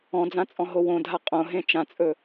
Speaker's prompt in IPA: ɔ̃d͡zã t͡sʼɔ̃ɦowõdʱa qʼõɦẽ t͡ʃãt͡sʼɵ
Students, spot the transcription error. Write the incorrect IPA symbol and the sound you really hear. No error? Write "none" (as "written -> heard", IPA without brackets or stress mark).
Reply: none